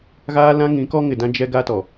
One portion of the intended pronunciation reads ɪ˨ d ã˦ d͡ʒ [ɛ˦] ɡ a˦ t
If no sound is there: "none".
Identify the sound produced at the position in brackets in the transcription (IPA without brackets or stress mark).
ɛ˦